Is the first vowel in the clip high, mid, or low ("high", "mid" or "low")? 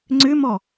high